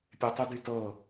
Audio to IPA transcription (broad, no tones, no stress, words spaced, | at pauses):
pʲetˤydytɤ